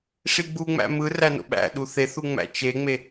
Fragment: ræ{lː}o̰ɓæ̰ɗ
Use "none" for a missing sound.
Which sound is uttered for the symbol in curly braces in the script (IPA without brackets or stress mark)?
n